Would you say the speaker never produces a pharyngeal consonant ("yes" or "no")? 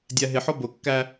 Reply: no